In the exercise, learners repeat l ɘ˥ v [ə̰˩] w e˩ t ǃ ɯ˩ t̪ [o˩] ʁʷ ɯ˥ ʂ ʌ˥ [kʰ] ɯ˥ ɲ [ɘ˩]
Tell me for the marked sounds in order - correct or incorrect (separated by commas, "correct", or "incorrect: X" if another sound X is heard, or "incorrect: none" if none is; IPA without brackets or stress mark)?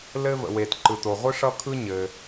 correct, correct, correct, correct